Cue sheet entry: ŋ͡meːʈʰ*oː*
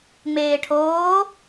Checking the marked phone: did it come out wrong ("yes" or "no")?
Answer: no